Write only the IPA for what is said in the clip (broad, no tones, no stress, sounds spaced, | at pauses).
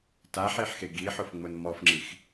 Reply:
t a ħ e ħ x e ɡ i ħ ʊ f ŋ͡m ʊ n m ɔ f ŋ͡ǁ i x